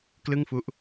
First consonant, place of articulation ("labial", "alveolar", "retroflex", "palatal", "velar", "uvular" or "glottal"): velar